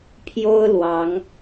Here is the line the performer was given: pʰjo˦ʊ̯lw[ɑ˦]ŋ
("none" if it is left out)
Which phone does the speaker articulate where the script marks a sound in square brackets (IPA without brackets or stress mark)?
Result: ɑ˨˦